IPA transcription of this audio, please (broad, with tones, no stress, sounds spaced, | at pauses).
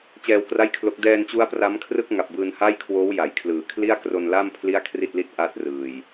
t͡ɕ ɛː˧ w k r a˥˩ j kʰ l o˦˥ k̚ d ɛː˧ n t͡ɕ u˦˥ a̯ p r a˦˥ m kʰ r ɯ˥˩ k̚ ŋ a˨˩ p̚ b ɯː˧ n h a˥˩ j kʰ w oː˦˥ w j a˩˦ j kʰ l ɯː˨˩ kʰ l i˥˩ a̯ k r o˧ n l a˥˩ m pʰ l i˥˩ a̯ kʰ r i˥˩ t̚ l i˥˩ t̚ ʔ a˥˩ t̚ r ɯː˨˩ j